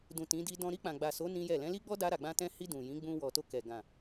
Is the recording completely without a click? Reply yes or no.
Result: yes